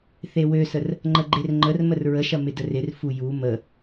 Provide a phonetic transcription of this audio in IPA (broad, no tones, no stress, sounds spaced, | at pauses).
θ e w ø s ə r | ŋ͡ǃ ə ɡ͡ǃ e r ŋ͡ǃ ə r m ə r ɹ ə ʃ ɐ m ɪ d ə r ɪ r f u j u m ə